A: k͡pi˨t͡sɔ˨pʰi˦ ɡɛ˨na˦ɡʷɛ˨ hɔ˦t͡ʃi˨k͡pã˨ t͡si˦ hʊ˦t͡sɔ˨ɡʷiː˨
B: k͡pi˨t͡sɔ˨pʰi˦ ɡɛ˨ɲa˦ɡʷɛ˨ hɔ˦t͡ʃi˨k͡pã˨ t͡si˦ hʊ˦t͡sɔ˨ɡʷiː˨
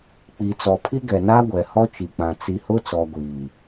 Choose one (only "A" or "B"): A